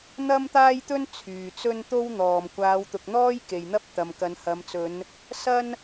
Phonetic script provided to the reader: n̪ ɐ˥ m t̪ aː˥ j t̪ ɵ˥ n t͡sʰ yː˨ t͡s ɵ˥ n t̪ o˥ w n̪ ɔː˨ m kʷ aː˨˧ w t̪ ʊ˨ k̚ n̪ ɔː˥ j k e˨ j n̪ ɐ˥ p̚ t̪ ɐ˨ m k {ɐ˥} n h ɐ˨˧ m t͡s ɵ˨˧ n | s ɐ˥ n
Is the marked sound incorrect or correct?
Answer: incorrect